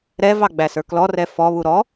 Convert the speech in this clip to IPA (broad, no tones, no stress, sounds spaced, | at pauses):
ɾ ɛ v ɑ ɡ͡b æ s ə˞ k l ɔ r ɛ f ɔ β u ɾ ɔ